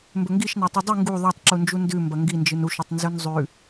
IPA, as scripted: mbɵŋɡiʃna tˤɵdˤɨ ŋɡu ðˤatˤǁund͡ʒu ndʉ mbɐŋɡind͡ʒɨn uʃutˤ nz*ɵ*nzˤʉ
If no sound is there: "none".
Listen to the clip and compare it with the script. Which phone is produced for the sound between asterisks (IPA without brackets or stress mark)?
ɵ